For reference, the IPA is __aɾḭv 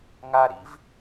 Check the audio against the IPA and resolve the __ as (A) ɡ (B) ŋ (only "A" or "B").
B